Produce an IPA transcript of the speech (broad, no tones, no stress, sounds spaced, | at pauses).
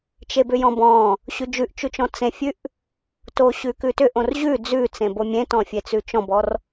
t͡ʃ e b ʏ j ɔ̃ b ɔ̃ | ɕ ʉ d͡ʒ ʉ ʔ t͡ʃ ʉ t͡ʃ ɔ̃ t͡s ẽ fʲ ʉ ʔ | t o ɕ ʉ k ʉ t ʏ ʔ õ r ʑ ʉ d͡z ʉ t͡s ẽ b o mʲ ẽ t ɔ̃ fʲ e t͡s ʉ t͡ʃ ɔ̃ b ɔ r